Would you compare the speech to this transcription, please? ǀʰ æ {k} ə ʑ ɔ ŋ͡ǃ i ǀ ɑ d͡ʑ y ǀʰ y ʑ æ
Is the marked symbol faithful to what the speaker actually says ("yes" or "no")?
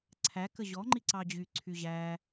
yes